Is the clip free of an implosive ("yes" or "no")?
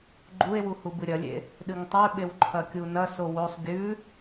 no